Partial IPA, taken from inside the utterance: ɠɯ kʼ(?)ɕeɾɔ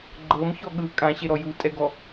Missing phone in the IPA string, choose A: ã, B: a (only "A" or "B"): A